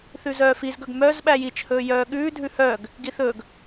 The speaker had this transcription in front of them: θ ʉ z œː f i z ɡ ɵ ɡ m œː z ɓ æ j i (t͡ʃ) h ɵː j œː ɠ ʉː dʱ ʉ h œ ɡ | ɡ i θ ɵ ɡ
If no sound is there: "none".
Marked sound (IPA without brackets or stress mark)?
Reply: t͡ʃ